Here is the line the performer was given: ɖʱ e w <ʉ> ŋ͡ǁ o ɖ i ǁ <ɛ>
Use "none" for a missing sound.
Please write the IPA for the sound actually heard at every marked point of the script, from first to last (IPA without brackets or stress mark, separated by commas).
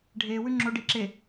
ʉ, e